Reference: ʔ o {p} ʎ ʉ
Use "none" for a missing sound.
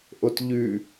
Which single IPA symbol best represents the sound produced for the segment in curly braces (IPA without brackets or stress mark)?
t